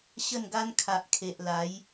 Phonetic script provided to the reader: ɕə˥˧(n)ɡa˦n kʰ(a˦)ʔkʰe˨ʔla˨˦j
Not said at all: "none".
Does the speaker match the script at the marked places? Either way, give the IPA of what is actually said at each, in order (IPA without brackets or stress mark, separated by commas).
n, a˨